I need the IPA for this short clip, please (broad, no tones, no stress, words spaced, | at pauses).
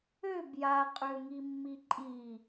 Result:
øb jaqʼø ŋimːiǃʼi